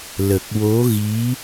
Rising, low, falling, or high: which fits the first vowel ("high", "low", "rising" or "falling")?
low